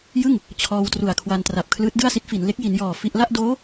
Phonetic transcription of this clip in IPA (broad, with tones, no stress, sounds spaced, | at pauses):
j ɯ˥˩ ŋ | t͡ɕʰ ɔː˧ w t r u˨˩ a̯ kʰ w a˧ n t r a˨˩ p̚ kʰ l ɯː˦˥ t̚ d ɯ˥˩ a̯ s i˦˥ t̚ f i˩˦ n l e˦˥ k̚ j i˩˦ n j ɔː˨˩ f i˥˩ ʔ l a˥˩ ʔ d oː˦˥